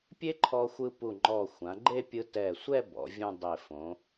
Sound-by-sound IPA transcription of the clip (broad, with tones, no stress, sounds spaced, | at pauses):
pʲ e˥ ǃʰ ɔ˧ xʷ ɯ˧ p u˧˩ ŋ͡ǃ ɔ˧˩ xʷ ã˩˧ ɡ͡ǃ e˥˧ pʲ ɯ˧ t ɛ˧˩ sʷ ɛ˥˧ b ɔ̰˩˧ vʲ ũ˥˧ dˤ e˧˩ f õ˩˧